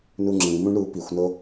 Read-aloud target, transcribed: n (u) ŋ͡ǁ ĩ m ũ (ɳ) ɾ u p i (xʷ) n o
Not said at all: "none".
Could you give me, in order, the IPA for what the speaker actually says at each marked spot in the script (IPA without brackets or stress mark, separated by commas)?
u, ɳ, xʷ